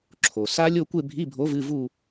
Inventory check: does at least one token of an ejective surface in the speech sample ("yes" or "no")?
no